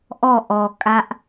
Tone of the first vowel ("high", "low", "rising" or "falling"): falling